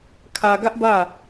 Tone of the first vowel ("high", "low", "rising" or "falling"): low